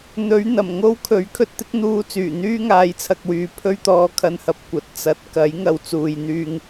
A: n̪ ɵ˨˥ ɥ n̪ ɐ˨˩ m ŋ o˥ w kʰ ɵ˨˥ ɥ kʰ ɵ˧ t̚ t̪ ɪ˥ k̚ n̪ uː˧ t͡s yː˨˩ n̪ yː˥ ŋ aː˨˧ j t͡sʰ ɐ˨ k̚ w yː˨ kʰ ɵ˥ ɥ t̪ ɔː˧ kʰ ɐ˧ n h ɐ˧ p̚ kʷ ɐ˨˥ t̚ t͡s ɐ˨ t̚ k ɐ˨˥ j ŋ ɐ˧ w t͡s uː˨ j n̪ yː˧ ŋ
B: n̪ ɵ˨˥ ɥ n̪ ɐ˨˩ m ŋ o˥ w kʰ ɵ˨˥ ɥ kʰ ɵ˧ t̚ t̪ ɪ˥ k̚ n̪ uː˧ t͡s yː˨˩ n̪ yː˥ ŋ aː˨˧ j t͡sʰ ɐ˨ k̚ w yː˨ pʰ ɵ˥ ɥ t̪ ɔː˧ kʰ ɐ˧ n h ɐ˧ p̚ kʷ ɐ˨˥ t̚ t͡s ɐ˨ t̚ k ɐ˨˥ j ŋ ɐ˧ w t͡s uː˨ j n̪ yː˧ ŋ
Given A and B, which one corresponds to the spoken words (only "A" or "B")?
B